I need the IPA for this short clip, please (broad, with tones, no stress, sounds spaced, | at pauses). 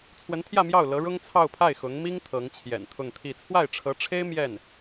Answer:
t͡sʰ w ə˧˥ n t̪ʰ j ä˥˧ m j ɑ˥˩ ʊ̯ l ɤ˧˥ ɻ ʊ˥ ŋ t͡sʰ ɑ˥˧ ʊ̯ pʰ a˥˩ ɪ̯ x ʊ˧˥ ŋ m i˥ ŋ t̪ʰ ɤ˧˥ ŋ t͡ɕʰ j ɛ̰˨˩ n t̪ʰ ʊ˥˧ ŋ t̪ʰ i˥˧ t͡sʰ w a˥˩ ɪ̯ ʈ͡ʂʰ ɤ˧˥ ʈ͡ʂʰ e˥ ɪ̯ m j ɛ˥˩ n